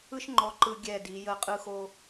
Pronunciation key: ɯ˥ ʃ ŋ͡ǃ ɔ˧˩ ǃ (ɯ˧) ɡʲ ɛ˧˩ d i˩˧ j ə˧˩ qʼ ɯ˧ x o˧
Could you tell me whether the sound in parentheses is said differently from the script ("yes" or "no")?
no